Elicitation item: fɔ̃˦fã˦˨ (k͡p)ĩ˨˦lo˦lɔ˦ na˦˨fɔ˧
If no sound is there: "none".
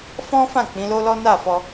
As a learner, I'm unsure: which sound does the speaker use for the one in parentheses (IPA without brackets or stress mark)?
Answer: k͡p